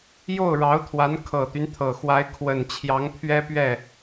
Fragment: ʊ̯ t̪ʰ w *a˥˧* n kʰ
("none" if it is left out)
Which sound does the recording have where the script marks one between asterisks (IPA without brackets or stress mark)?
a˧˥